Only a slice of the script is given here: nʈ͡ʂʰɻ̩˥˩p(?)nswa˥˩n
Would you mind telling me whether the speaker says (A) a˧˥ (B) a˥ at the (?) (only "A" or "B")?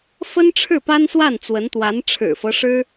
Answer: B